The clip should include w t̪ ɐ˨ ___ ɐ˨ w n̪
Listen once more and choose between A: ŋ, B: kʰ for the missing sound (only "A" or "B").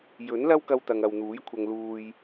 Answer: A